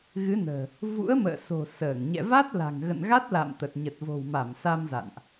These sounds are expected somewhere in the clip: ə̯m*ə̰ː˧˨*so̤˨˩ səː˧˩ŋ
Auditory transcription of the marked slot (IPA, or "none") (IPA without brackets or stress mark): ə̰ː˧˨